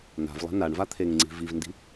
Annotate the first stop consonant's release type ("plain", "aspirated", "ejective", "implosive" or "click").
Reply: aspirated